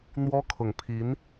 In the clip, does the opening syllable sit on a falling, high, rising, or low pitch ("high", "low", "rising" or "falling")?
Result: high